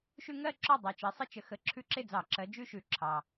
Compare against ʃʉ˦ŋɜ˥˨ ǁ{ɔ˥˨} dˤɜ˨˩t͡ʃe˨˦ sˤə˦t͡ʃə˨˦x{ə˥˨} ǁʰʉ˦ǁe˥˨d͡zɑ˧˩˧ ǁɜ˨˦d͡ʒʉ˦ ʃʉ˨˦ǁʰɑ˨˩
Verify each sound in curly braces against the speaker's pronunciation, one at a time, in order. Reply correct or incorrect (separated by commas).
correct, incorrect